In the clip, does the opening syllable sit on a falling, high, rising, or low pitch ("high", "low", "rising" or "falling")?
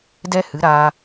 high